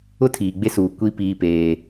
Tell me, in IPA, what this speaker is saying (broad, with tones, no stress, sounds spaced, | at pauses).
ʊ˦ tʰ iː˨ ɡ͡b e˦ s uː˨ kʷ i˦ p iː˦ p eː˦